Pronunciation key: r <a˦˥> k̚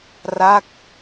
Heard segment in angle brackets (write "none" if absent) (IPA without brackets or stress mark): a˦˥